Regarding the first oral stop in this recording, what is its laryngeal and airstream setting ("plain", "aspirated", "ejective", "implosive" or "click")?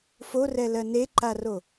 click